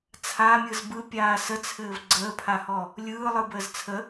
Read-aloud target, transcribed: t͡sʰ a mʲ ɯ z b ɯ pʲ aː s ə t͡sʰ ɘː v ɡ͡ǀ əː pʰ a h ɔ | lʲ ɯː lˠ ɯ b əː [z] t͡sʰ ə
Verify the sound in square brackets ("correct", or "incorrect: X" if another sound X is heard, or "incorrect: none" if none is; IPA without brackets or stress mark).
correct